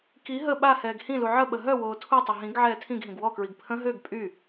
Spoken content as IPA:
k i ɦ ə ɓ a h ɛː ɡ h ĩ l u ʕ ə ɓ ə ɦ œ w oː tʰ u tˤ ə ɦ ĩ ɡ ʕ ɛː tʰ ĩ ɡ ɦ ĩ ɡ w ɔ k ɹ i ɡ pʰ ə̃ ɦ ø ɡ pʼ y

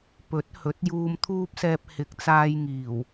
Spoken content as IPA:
p ɵ˨˥ t̚ h ɵ˨˥ t̚ j uː˧ m t̪ʰ uː˥ p̚ s ɛː˧ p̚ h ɪ˨˥ k̚ t͡s aː˧ j ŋ iː˨˩ w

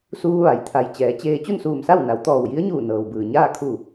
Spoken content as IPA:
s uː˧ ʋ a˩˧ j t̪ʰ a˩ j t͡ɕ ɛː˩˧ t͡ɕ eː˧ t͡ɕ u˥˨ n s uː˧˩ m s a˥˨ w n a˩˧ w t̪ ɔː˧˩ w j i˧˥ ə̯ ɲ uː˧˩ n ɤː˩ w b ɯː˩ ɲ aː˥˨ kʰ u˧˩

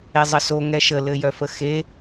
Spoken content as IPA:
e zˤ ə s o ŋ ɛ ʃ ə l ɘ j œ f ə x e

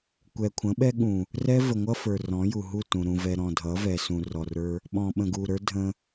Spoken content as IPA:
kʷ ɛ˨ kʷʰ ə̃˨˦ ɓ ɛ˦ ɠ ũ˨ | r ɛ˦ v ə˨ ŋʷ ʌ˦ f ə˞˨ r ɔ̃˨˦ j u˨ ɦ u˦˨ t ũ˨ ɾ ũ˨ v ɛ˨ ɾ ɔ̃˨ dʱ ʌ˨˦ v ɛ˨ s ũ˨ r ɔ˨ r ə˞˦ | ɓ ɔ̃˨ ɓ ə̃˨ ɡ u˨ ɾ ə˞˦ dʱ ə̃˦

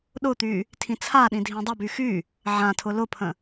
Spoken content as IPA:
ɗ ʊ t̪ y | tʰ ĩ t͡sʰ a ɗ ĩ dʱ ĩ dˤ ə b y x y | ʕ ã tʰ ʊ l ʊ pʰ ə̃

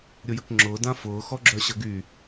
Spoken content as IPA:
ɾʲ ʊ j ə k ŋ͡ǁ ʊː d ã f ʊː x ɔ ɡ͡ǁ œ ɕ ə ɡ y

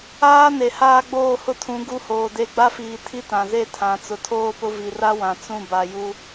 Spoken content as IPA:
aː˦ n e˨ h aː˦ ɡ͡b oː˦˨ h ʊ˦ tʰ ũ˨˦ ɡ u˦ h oː˨ d e˦˨ ɡ͡b a˦ f iː˨ tʰ i˦ t ã˨ z e˦˨ tʰ ã˨ t͡s ʊ˨ tʰ oː˦ p ʊ˦ v i˨ r a˦ w ã˨ t͡s ũ˦˨ b a˨ j u˦

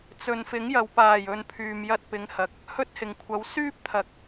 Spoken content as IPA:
t͡s ɵ˨ n f ɪ˨˥ ŋ j ɐ˨ w p aː˨˩ j ɵ˧ n pʰ yː˨ m j ɐ˧ t̚ p ɪ˨˧ ŋ h ɐ˨ k̚ | h ɵ˥ t̚ h ɪ˨˩ ŋ kʷʰ ɐ˨˥ w s yː˥ p̚ t̪ʰ ɐ˨ k̚

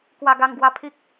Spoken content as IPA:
k w a˧ ɡ a˧ ŋ ɡ w a˧ pʰ i˦ k̚

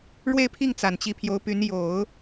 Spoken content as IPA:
ɻ w e˥˧ ɪ̯ pʰ i˥˩ ŋ t͡s a˨˩ n t͡ɕ i˧˥ pʰ j o˧˥ ʊ̯ p y˧˥ n j o˨˩˦ ʊ̯

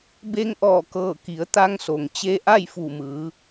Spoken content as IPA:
b e˧ ŋ ʔ ɔː˧˩ k ɤː˧˩ k i˩˧ ə̯ t̪ a˧ ŋ s o˩ ŋ t͡ɕ e˧ ʔ a˥˨ j f u˧˩ m ɯː˩˧

